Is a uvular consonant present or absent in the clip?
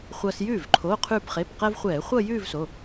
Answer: present